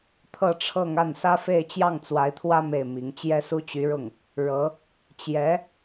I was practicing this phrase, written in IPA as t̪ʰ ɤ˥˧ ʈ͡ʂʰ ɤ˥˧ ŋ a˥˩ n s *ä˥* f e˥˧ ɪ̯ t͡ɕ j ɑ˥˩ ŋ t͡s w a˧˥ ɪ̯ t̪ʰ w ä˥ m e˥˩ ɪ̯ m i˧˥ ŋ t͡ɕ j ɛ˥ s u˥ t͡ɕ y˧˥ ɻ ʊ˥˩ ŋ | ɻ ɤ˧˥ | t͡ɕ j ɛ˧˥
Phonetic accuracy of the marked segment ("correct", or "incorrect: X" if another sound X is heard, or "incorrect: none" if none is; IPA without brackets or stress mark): correct